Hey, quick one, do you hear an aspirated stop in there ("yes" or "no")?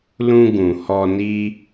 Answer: no